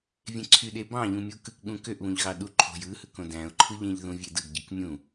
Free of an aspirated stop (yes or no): no